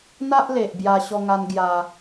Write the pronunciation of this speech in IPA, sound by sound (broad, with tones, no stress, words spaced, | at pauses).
n̪a˦ʔle˨ʔbja˧ ɕɔ˧ŋa˧n ɡja˧